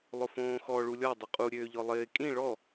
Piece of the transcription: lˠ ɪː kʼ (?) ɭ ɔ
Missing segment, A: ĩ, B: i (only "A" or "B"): A